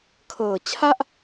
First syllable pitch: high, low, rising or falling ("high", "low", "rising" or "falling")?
low